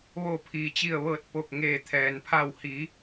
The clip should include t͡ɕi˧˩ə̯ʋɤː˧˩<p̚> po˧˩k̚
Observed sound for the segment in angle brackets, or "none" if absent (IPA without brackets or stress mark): t̚